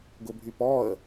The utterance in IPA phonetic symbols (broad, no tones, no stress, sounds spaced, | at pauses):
ɡ ʊ bʱ y p ɔ ə̯